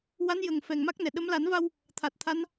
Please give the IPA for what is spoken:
w a˧˥ n j ə˨˩ ŋ f ɛ˨˩ ŋ m a˦˥ k̚ n ɛ˨˩ ɗ ə˧˥ m l a˨˩˦ n v a˧ w | t̪ʰ a˨˩ t̚ t̪ʰ a˧˥ n

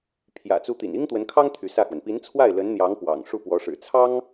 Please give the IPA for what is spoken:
pʰ j ä̰˨˩ t͡s u˧˥ t̪ ḭ˨˩ n i˥ ŋ t̪ w ə˧˥ n kʰ ɑ˥ ŋ t̪ʰ y˧˥ s ä˥˩ x w ə˩ n p i˧˥ n t͡sʰ w a˥˩ ɪ̯ l ə˧˥ n n̪ j ɑ˧˥ ŋ p w ɑ̰˨˩ ŋ ʂ u˥˩ p w ɔ˧˥ ʂ ɻ̩˨˩ t͡sʰ ɑ˥ ŋ

